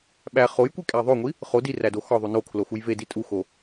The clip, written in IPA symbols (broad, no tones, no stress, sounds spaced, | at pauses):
ɓ æ χ o j kʷ i kʼ æ ðˤ o ŋʷ i | χ o d i r æ d o x ɒ ðˤ u n o kʰ l o x u j v e d i tʼ u x o